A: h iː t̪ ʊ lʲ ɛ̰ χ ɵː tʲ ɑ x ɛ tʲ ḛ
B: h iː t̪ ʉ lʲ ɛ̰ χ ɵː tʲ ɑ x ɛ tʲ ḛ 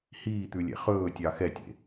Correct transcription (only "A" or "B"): B